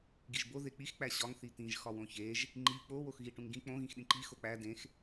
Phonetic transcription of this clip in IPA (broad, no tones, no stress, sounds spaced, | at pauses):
ɡ i ʒ b o ð e k͡p i x k͡p æ ɕ ɒ ŋ θ i t̪ ĩ ʒ x ɒ w õ ç e ʒ | ŋ͡ǃ i k͡p o w o x ɣ i ʈ ũ ŋ ɡ ĩ k͡p õ ɣ ĩ x ɗ ĩ ǃ i x o k͡p æ d ẽ x